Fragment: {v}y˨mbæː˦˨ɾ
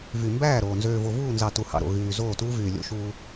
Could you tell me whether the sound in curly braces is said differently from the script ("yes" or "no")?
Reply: no